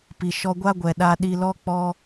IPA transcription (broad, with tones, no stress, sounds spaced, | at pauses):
p i˨ ʃ ɔ˧ ɡʷ a˦ ɡʷ ɛ˨ ɗ a˧ ɗ i˧ l ɔ˦ k͡p ɔ˦